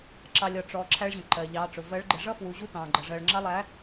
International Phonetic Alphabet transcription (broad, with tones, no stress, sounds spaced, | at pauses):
ǁ ɑ˨ lʲ ɒ˨ ʈ͡ʂ ɔ˨ ǁʰ æ˦ ɭ ʑ ə̃˨ ǃ ɜ˨ ʎ ɑː˨˦ ʈ͡ʂ ʊ˨ v ɜ˨˦ ɭ ɡ͡ǃ ɪ˨ ʐ ʌ˦ f w u˨ ʑ u˦ t ɑ̃ː˨ ɡ͡ǃ ʌ˨ ʐ ɜ˨ ɭ ŋ͡ǁ ɑ˦ lˠ æ˨˦